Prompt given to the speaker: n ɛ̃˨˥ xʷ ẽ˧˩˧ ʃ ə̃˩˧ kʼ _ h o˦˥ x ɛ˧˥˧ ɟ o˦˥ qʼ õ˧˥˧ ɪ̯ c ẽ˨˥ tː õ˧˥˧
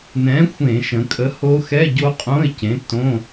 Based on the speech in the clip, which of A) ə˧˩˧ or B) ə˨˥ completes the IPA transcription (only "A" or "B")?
B